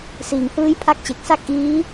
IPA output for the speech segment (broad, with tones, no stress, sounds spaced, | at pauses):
s iː˩˦ ŋ h ɯː˦˥ j pʰ a˦˥ k̚ t͡ɕ e˨˩ k̚ s a˥˩ k̚ ʔ iː˦˥